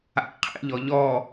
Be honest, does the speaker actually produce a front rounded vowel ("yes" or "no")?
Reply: no